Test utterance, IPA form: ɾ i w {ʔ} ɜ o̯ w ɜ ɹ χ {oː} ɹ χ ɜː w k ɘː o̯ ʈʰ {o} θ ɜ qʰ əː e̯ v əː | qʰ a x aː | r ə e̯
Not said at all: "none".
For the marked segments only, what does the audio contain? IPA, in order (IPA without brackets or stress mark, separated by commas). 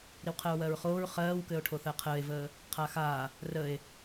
qʰ, oː, o